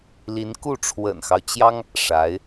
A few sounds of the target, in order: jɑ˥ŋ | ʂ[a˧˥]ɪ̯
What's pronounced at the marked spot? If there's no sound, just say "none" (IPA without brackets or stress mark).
a˧˥